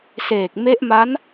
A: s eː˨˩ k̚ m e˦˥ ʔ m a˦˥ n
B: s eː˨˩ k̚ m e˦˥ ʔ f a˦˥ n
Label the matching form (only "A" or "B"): A